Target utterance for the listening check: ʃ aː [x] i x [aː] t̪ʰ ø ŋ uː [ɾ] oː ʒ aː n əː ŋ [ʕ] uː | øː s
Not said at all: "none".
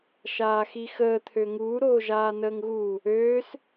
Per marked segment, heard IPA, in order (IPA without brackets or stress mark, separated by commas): x, əː, ɾ, ɣ